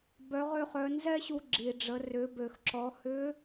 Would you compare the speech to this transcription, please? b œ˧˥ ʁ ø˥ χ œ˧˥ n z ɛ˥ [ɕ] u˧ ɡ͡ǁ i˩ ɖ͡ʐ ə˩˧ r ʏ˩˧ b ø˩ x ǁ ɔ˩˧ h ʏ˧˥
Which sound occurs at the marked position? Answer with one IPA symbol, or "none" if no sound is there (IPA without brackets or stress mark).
ɕ